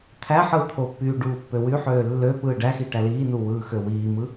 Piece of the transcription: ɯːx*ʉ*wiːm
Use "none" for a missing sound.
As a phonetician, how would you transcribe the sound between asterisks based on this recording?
ø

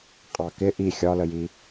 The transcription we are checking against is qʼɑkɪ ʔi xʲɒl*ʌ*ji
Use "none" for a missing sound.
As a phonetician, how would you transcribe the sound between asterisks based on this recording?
ə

